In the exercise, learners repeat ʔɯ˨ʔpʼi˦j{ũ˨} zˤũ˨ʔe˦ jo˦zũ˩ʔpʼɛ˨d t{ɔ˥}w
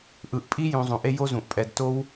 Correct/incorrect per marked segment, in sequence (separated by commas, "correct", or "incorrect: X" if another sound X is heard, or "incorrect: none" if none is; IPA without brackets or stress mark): correct, incorrect: o˥